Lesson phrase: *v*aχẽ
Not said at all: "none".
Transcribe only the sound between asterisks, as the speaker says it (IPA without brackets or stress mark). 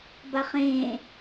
b